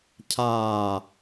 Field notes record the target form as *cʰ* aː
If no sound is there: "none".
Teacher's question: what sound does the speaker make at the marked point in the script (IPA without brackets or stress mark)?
cʰ